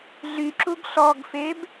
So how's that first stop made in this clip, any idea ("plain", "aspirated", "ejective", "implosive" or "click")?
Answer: click